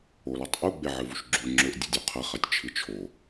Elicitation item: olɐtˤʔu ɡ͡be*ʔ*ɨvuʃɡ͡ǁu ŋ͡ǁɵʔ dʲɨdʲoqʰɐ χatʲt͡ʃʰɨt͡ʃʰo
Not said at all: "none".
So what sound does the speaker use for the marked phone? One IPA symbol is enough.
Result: ʕ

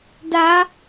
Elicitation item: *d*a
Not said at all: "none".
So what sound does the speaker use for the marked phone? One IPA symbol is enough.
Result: d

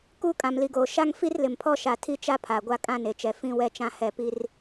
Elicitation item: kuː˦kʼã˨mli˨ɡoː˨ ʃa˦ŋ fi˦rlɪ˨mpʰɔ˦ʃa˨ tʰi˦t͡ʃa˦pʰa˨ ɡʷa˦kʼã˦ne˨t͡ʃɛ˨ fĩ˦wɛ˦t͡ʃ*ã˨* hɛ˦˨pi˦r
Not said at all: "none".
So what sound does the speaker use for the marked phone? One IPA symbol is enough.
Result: ã˦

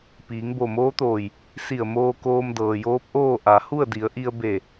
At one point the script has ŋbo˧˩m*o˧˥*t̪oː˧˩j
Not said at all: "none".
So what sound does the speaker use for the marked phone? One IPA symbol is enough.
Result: oː˧˥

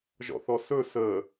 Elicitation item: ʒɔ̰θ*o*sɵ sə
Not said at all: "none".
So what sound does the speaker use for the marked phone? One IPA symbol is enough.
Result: ɔ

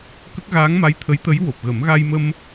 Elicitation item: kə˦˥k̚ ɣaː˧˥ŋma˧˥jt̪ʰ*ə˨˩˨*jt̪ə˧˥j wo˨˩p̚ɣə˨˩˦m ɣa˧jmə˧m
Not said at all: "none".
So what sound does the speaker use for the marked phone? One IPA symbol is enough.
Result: ə˧˥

